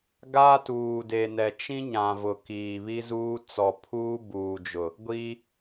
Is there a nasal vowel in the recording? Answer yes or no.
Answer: yes